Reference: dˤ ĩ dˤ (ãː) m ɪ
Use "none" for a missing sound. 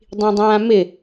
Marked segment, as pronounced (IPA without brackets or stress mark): ãː